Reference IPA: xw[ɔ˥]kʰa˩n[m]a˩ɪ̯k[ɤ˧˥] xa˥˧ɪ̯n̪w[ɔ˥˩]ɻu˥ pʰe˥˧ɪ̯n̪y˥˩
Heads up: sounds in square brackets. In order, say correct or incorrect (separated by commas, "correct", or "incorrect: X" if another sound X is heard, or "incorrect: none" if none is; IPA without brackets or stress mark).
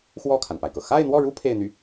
incorrect: ɔ˥˩, incorrect: p, incorrect: ɤ˩, correct